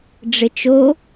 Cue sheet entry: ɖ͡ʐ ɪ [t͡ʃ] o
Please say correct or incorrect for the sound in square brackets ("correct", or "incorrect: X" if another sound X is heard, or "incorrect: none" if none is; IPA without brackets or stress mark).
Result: correct